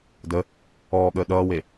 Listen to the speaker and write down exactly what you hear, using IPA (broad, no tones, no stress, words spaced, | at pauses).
də | ɔːɠəː ɗʌːwe